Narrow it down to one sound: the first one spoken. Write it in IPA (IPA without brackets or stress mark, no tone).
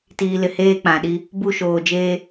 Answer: t